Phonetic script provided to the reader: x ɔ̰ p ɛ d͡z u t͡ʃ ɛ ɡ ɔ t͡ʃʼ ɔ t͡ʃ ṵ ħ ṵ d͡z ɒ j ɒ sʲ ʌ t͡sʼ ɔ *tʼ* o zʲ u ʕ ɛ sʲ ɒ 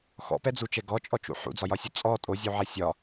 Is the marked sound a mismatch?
no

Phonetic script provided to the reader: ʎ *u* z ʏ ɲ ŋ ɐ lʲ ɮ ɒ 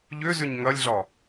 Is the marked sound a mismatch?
yes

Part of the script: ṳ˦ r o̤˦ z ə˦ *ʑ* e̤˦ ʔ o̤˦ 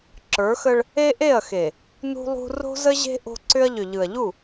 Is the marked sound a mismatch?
no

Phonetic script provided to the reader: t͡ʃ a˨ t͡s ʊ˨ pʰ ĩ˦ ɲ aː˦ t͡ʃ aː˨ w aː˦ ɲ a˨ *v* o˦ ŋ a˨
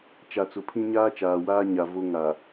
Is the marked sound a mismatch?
no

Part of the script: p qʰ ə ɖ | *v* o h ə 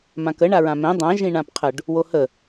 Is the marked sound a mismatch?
yes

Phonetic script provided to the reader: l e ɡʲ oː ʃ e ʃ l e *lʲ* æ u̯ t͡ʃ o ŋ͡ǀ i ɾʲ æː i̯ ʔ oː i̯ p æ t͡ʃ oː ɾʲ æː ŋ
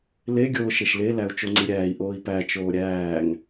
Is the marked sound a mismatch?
yes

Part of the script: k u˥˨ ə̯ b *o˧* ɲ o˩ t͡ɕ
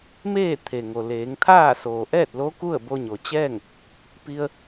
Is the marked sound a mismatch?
no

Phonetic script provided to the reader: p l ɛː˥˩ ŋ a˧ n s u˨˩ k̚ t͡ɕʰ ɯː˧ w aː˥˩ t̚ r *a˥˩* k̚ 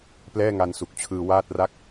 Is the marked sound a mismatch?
no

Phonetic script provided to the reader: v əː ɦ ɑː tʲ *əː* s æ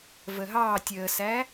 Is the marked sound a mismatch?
no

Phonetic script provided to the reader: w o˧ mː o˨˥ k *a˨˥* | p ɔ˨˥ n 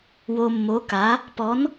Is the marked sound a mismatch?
no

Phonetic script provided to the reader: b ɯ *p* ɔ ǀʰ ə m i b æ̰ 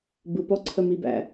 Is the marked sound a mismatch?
no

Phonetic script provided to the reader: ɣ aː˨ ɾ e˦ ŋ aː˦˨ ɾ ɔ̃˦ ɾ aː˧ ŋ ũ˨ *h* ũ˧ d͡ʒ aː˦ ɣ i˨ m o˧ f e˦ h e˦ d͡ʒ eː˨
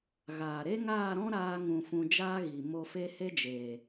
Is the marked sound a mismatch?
yes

